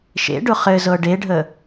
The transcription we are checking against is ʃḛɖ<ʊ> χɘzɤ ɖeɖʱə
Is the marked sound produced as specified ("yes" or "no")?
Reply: yes